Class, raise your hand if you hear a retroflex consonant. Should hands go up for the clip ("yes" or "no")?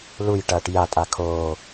yes